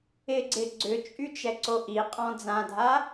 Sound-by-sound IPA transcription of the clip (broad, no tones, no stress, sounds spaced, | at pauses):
ɪ ɡ͡ǀ ɪ ɡ͡ǀ ʏ t͡ʃʼ y t͡ʃ ɛ ǀ o ʔ i qʼ ɔ̃ d͡z ã dʱ a